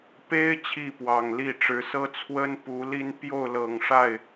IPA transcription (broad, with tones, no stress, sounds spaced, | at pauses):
p e˥ ɪ̯ t͡ɕʰ i˥˩ p w ɑ˨˩ ŋ l i˥˩ ʈ͡ʂ ɻ̩˧˥ s ɤ˥ t͡sʰ w ə˥ n p u˧˥ l i˥ n p j o˥˩ ʊ̯ l ɤ˨˩ ŋ ʂ a˥˩ ɪ̯